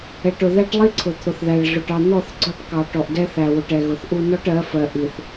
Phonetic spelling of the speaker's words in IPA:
ɛ˨ ʈ ʊ˨ ð æ˦ ʈ lˠ i˦ ǀʰ ʊ˨ t̪ʰ ʊ˨ θ ð æ˨ ɭ ɮ ʊ˨ ʈ ɑ˨ n̪ ɔ˦˨ θ ɡ͡ǀ ɔ˦˨ ʈ k ɑ˨ ʈ ɔ˨ ʔ d ɛ˦ θ æ˨ w ʊ˨ ʈ ɛ˨ ɣ ʊ˨ θ ʔ u˦ n ɔ˦ ʈ ɜ˨˦ f ɜ˨ ʔ i˨ θ

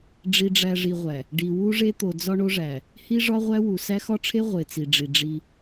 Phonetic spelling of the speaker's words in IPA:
ɖ͡ʐ i˨ ɖ͡ʐ æ˨ ʐ i˨ ʁʷ æ˨ | ɖ i˨ w u˦ ʐ e˦ t̪ o˨ d͡z ɒ˦ ɳ o˦ ʐ æ˨ | h i˦ ʐ ɒ˦ ʁʷ æ˦ w u˨ s æ˦ x ɒ˦ ʈ͡ʂʰ e˦ ʁʷ e˨ t͡s i˨ ɖ͡ʐ i˨ ɖ͡ʐ i˦

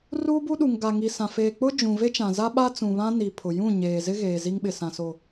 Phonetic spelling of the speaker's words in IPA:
r uː˦ b u˦ ɗ u˨ ŋ ɡ a˨ ŋ i˨ s ã˨ f eː˨ k͡p ʊ˦ d͡ʒ ũ˨ v e˦ t͡ʃ ã˨ z a˦ ɓ a˦ t͡s ũ˨ β ã˦ n i˨ pʰ ʊ˨ j ũ˦˨ ɲ eː˨ z ɪ˦ ɣ eː˨ z i˦ ŋ ɓ ɪ˨ s ã˨ s o˨

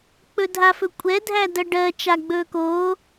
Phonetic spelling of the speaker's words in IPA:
k͡p ɵ dʱ a f ɵ kʷʼ ɛ dʱ æ d ɜ ɖ ɜ t͡ʃ a ɡ͡b ɵː k oː

